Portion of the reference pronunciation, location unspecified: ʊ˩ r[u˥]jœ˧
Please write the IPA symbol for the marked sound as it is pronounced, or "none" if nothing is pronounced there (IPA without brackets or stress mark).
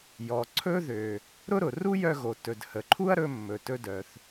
u˥